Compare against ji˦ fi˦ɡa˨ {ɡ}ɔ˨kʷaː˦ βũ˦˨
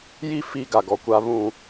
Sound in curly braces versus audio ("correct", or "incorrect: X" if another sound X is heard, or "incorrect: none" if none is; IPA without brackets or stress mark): correct